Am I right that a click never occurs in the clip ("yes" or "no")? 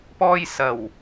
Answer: yes